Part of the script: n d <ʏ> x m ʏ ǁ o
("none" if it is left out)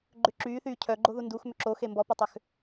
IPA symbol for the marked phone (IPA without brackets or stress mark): u